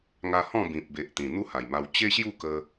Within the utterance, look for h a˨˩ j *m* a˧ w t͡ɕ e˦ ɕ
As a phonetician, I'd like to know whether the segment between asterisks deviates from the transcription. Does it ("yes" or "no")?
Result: no